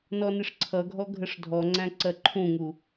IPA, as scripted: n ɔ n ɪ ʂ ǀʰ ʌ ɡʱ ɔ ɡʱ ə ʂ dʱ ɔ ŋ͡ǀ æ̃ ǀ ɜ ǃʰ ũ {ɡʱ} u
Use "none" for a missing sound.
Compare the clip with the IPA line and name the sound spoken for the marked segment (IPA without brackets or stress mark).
ŋ